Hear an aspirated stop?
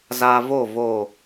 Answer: no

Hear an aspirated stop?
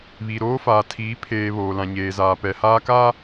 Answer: yes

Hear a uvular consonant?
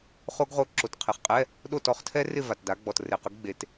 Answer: yes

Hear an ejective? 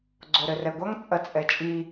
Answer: yes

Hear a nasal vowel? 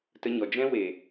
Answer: yes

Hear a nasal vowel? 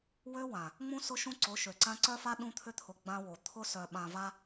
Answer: yes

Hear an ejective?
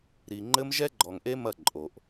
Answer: yes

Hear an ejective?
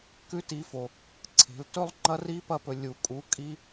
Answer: yes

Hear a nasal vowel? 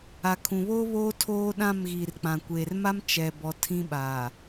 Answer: yes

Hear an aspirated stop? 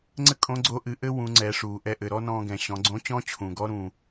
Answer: yes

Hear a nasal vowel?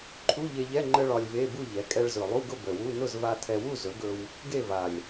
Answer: no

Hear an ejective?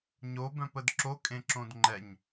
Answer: yes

